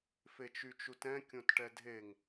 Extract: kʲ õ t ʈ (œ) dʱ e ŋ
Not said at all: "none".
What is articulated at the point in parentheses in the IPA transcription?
ɛ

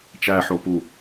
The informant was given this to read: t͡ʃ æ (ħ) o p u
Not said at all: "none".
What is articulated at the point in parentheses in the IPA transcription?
ħ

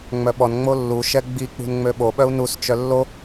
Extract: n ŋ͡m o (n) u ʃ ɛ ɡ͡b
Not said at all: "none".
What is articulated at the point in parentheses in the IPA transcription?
lː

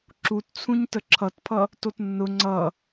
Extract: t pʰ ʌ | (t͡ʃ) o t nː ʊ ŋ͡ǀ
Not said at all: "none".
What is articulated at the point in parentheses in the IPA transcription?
t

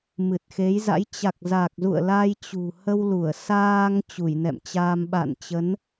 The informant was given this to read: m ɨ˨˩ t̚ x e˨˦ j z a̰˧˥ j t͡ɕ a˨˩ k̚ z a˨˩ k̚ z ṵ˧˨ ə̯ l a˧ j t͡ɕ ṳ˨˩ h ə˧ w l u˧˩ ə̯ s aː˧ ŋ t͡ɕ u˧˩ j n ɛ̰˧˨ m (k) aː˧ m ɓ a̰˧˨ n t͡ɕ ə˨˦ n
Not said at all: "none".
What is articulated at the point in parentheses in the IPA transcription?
t͡ɕ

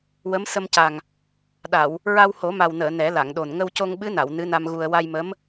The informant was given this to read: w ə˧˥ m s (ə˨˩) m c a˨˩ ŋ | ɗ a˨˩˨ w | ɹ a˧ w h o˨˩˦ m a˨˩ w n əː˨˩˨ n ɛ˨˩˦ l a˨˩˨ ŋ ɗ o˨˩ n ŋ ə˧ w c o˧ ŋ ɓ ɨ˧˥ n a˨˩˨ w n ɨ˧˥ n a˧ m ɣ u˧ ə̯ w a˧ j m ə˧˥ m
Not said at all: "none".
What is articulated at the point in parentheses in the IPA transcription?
ə˧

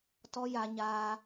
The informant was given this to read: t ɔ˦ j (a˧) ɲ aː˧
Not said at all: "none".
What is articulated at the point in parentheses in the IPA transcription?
a˧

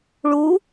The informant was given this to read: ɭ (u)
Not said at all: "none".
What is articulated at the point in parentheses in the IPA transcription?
u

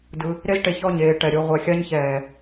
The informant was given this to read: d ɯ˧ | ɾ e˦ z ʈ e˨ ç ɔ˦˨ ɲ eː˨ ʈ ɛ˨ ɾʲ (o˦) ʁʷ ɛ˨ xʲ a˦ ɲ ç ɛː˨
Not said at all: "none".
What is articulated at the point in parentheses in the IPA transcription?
o˦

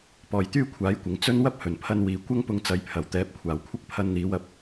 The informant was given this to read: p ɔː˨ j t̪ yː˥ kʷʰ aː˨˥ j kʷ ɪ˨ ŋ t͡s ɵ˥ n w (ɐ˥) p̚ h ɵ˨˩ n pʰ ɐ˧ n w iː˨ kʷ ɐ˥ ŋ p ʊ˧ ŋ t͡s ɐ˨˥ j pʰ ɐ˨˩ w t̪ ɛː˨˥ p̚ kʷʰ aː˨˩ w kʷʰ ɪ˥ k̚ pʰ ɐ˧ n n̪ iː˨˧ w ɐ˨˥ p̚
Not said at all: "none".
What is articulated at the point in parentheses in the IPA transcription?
ɐ˥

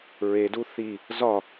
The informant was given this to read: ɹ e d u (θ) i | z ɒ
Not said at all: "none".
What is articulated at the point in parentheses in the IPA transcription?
θ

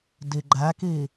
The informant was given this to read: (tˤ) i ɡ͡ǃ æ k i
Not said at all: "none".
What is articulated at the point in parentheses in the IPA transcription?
d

